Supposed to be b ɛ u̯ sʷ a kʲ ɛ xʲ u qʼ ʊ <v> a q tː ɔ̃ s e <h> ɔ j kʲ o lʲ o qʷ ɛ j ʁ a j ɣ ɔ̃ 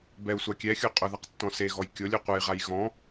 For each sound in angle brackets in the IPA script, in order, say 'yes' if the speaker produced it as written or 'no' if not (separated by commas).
no, no